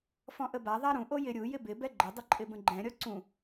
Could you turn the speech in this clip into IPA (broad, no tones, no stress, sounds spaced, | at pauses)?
f ɔ̃ ʔ ə b a ðˤ a ɾ ũ ʔ o j ɪ ɾʲ u j ɪ b ɪ b ɛ ɡ͡ǃ ə dˤ ə ǃʼ ɪ b ə̃ ɡ͡ǃ ɛ̃ ɾʲ ɔ ǀ ũ